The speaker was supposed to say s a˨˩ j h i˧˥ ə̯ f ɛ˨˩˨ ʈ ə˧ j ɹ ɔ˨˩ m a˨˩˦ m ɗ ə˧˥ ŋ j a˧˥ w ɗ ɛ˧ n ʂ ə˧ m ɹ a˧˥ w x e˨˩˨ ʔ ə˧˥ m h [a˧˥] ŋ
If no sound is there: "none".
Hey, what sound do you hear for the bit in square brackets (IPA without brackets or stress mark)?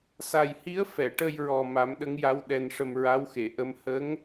ə˧˥